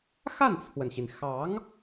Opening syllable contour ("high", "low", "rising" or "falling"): falling